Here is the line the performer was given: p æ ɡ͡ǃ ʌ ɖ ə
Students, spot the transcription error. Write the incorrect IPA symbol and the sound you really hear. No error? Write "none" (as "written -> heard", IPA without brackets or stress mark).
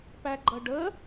none